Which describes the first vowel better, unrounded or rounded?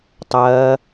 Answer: unrounded